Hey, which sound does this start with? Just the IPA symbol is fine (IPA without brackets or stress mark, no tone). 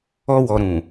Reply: ɔ